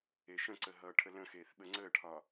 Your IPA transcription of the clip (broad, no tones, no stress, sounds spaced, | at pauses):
e ʃ ə̃ ǀ ə ɦ ʌː ʈʰ ə l ə̃ x eː θ ɓ ə ŋ͡ǀ əː ʈʰ ɒ